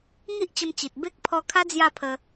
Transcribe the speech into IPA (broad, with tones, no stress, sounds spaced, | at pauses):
ŋ i˦ ʔ t͡ɕ ə˧ m t͡ɕ i˨ t̚ b e˦ k̚ pʰ ɔ˧ kʰ a˦ d͡z j a˥˧ pʰ ə˧